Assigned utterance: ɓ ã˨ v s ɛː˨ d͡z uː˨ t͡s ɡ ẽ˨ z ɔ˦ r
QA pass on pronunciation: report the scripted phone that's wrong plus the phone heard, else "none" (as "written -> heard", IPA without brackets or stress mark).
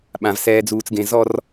none